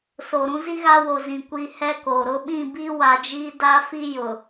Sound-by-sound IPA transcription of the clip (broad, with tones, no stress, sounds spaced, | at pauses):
s o˨ ɾ ũ˦ z i˦ ɣ a˦ w o˨ z ĩ˨ kʷ i˨ h ɛ˦ k o˨ ɾ ʊ˦ ɓ ĩ˦˨ b i˦ w a˨ d͡ʒ iː˦ d a˦ f i˦ j ʊ˨